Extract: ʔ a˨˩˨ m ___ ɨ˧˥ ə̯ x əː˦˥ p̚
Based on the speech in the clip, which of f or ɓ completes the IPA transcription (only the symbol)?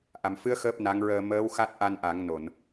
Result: f